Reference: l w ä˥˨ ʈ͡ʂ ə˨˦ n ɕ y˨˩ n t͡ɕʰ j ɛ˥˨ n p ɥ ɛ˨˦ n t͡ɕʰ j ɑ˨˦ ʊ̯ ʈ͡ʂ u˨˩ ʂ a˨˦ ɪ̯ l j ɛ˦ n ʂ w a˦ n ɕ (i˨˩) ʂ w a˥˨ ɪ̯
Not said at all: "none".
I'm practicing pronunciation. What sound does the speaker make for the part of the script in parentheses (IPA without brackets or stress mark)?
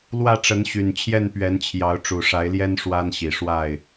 i˨˩